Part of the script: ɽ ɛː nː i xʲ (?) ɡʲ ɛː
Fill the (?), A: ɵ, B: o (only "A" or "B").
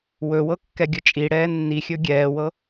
A